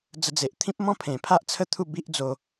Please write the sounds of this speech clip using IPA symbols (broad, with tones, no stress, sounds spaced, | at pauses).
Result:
d͡z ə˧ d͡z e˨ ʔ t̪ʰ ĩ˦ p̚ m ɔ̃˥˧ pʰ ẽ˨˩ pʰ a˦ ʔ t͡sʰ ə˥˧ t̪ʰ u˥˧ b i˦ ʔ d͡z o˧